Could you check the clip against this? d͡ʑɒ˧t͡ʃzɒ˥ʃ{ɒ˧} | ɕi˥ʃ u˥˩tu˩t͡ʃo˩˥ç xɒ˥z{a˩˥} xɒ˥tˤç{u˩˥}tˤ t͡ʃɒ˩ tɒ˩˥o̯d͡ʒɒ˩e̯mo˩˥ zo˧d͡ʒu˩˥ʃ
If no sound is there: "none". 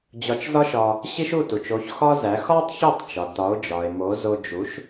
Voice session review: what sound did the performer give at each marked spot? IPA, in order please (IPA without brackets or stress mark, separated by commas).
ɒ˧, æ˩˥, u˥˩